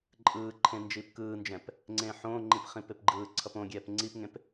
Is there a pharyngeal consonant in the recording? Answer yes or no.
yes